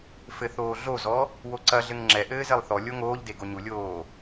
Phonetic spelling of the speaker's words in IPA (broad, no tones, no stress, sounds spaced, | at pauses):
f ɘ θ oː ɮ o z ɔ | w o ǀ ɐ ɮ ɘ ŋ ŋ͡ǁ ɛ ʔ ɘː z e lˠ θ ɔ lʲ o ŋ oː ʎ d e ɡ o ɲ u lʲ oː